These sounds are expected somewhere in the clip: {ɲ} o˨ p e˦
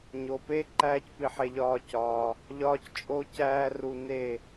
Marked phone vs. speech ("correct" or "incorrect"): correct